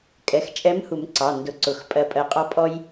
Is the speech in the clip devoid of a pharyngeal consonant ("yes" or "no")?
yes